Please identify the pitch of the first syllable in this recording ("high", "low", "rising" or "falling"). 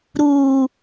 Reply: low